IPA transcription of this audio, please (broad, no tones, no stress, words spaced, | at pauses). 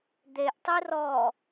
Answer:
d̪eʔtˤi rɔ